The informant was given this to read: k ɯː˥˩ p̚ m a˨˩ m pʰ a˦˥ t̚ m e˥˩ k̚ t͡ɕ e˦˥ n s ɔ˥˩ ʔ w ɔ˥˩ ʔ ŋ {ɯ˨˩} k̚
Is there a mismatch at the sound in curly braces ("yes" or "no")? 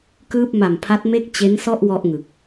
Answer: no